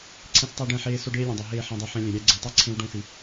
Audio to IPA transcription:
ǀʰ ẽ˦ s tˤ ɛ˦ ɖ ɛ̃˦˨ ħ eː˦ s o˦ ɖ eː˦ lʲ ɛ̃˨ dˤ ɛ˨ ɦ eː˦˨ ħ ẽ˦ dˤ e˦ ħ ɛ̃˦ lʲ ɛ̃˨ ɾʲ æ˦ ɡ͡ǀ e˨ tˤ e˦ ǀʰ ẽ˦ w ɖ õ˦˨ s i˨

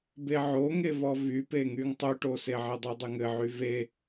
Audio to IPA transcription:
b e ʕ o ŋ e v ɔ v y p e ŋ y ŋ tˤ u ʈ o s e ʕ ɘ dˤ u dˤ ɘ ŋ ɘ ʕ y v e

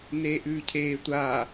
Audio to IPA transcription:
n eː ʔ ʉː cʰ eː tʷ aː

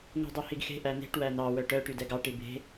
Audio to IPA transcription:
ŋ ṳ dˤ o h i ɡ x e̤ ʔ æ n̪ e̤ ʈ w æ n ɑ w œ ʈ œ ʈ y d ɛ ɡ ɑ ʈ i b e̤

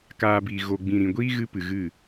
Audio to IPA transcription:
k aː˧ b iː˨ ɣ o˨ ɡ͡b ĩ˨ ɾ ĩ˨ ɡʷ iː˦ ɣ ɨ˧ p ɨ˨ ɣ ɨ˦˨

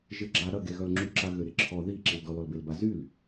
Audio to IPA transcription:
ʒ ɪ ɡ͡ǁ a ɾ ɐ ɡ e ɣ œ l ŋ͡ǁ y ǁ a ɣ ø ɾ ɪ ǁʰ ɔ ð i ǁ i l d ɔ l ɔ l b e l b a z y l

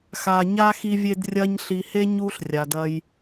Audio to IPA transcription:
x a˨ ɲ a˦ x i˦ vʲ e˦ d rʲ ɐ˦ ɲ ɬ i˨ h e˦ ɲ u˦ ɬ rʲ a˨ d ɐ˦ j

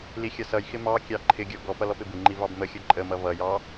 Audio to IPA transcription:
l i xʲ ʌ s ʌ j x ɪ m ɑ kʲ ɑ ǃʰ ɪ ɡʲ ɔ ɡ ɔ p ʌ l ɔ p ɪ b ɪ ŋ͡ǃ i v ɑ b m ə xʲ ʌ ǃʼ ə m ʌ v ʌ j ɑ

